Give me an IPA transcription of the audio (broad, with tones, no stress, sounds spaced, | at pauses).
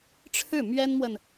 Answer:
ʈ͡ʂʰ ɻ̩˥˩ m ɥ ɛ˥ n m w ə˨ n